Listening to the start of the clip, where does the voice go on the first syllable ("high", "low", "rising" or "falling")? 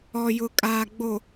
low